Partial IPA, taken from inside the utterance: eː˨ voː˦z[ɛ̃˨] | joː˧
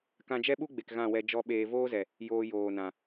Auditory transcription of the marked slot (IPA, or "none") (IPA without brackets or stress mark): ɛ˨